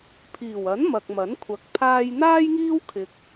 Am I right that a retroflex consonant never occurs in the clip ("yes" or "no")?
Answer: yes